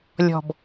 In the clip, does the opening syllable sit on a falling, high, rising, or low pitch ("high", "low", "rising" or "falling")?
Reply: low